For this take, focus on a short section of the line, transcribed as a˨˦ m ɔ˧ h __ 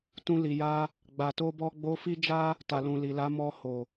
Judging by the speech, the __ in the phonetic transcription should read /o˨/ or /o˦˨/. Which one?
o˨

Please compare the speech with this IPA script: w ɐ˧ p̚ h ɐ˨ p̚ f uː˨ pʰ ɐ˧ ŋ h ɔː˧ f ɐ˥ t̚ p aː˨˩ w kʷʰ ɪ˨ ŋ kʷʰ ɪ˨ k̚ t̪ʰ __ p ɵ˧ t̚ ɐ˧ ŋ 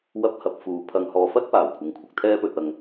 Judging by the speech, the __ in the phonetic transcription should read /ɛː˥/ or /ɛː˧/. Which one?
ɛː˥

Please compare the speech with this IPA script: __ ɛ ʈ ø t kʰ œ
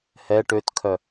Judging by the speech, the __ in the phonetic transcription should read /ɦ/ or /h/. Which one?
h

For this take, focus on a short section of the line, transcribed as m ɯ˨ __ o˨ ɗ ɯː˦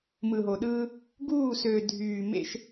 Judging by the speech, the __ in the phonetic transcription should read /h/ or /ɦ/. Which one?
ɦ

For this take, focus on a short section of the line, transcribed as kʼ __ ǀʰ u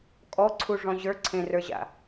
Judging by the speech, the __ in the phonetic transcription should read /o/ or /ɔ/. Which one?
ɔ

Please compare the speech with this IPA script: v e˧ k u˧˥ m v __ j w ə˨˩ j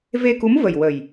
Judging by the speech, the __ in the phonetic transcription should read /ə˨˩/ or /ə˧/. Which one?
ə˨˩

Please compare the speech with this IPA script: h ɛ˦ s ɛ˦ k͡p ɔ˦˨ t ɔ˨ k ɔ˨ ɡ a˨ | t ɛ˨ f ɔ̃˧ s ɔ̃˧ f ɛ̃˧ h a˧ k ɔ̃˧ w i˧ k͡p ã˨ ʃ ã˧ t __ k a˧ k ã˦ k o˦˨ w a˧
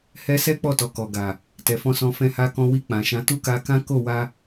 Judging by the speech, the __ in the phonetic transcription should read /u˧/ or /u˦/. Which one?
u˦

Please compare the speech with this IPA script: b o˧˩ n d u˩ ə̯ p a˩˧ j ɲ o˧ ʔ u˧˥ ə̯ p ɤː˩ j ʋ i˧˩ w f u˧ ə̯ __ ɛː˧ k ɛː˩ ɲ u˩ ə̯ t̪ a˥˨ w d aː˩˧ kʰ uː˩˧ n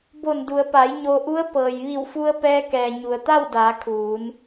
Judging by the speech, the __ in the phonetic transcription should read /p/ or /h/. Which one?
p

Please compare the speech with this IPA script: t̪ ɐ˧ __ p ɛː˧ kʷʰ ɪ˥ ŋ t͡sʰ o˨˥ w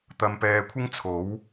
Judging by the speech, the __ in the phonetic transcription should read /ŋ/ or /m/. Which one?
m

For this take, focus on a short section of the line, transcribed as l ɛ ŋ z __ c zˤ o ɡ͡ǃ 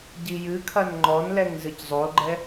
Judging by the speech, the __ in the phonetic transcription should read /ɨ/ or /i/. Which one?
ɨ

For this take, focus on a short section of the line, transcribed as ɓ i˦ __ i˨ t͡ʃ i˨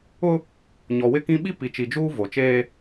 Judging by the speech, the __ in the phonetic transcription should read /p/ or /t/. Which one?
p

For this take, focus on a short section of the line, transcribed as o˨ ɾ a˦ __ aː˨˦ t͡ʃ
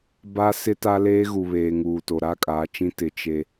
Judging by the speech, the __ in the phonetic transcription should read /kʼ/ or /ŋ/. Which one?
kʼ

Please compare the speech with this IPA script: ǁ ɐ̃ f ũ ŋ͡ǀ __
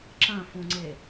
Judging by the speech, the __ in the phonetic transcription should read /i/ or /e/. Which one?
e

